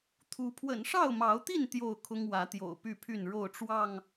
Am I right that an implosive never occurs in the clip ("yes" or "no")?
yes